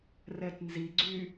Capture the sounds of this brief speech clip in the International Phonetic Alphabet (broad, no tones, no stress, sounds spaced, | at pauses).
r ɛ t n z i ɡ͡ǀ y